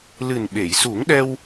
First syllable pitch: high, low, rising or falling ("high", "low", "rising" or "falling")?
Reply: low